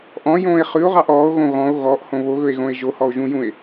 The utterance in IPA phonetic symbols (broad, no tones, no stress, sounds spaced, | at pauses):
ʔ ɔ̃ j õː e̯ χ ʉ o̯ ʁ ɑ ʔ ɔː o̯ ɣ õ ɣ ɔ̃ o̯ ɣ ɔ ʔ h õ β o ɣ ɵ e̯ ɣ õ e̯ ʒ o h ɔ o̯ ʒ ũ j ũ e̯